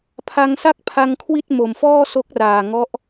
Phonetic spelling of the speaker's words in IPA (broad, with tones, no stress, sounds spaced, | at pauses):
pʰ a˧ ŋ s a˥˩ k̚ pʰ a˧ ŋ kʰ w i˥˩ t̚ m o˨˩ m f ɔː˥˩ s o˦˥ k̚ r aː˨˩ ŋ ɔ˦˥ ʔ